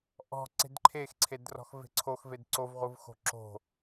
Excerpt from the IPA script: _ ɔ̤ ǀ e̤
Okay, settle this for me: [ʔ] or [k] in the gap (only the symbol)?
ʔ